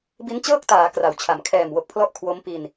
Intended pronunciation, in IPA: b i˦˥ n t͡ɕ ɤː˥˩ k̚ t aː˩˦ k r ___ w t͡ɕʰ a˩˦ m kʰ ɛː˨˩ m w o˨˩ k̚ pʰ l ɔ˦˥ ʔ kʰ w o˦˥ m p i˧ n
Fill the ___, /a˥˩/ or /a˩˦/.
a˩˦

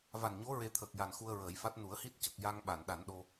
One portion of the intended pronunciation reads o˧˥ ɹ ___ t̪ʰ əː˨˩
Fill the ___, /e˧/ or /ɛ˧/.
e˧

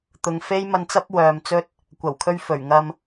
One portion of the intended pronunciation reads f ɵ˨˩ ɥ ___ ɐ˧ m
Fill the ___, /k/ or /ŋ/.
ŋ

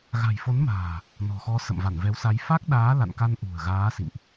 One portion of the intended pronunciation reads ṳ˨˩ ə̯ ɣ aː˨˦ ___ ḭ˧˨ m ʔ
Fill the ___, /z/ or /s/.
s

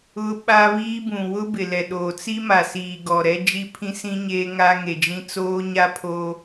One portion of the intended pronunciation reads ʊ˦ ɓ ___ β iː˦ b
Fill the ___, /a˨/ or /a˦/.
a˦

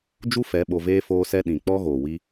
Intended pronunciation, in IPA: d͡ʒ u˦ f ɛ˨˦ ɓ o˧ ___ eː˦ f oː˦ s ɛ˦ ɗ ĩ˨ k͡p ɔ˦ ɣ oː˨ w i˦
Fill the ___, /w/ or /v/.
v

